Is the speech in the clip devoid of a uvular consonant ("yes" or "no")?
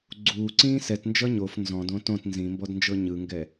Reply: yes